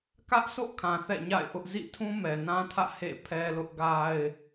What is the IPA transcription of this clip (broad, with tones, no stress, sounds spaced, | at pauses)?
k ä˦ ʔ sʰ o̰˦˨ kʰ ã˨ θ ɛ̰˦˨ ɲ a̰˦˨ ɪ̯ ʔ ʊ˦ ʔ z ḭ˦˨ tʰ ũ˦ m ɛ˨ n ã˦ tʰ ä̰˦˨ h ḛ˦˨ pʰ ɛ˦ l ʊ˦ ʔ ɡ a˦ ɪ̯